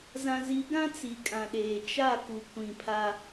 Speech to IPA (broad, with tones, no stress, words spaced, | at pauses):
zã˨zi˨˦ɡã˦ t͡si˨kʼã˨ɗeː˨ t͡ʃa˦˨ ku˨ kʷĩ˨pʰa˦